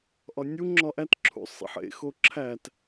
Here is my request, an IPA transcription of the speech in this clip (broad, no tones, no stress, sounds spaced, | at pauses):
ʔ ɒ nʲ u ŋ͡ǁ ɒ ʔ æ t ǁʰ ṵ sˤ ḛ ħ ḛ x o ǁʰ æ t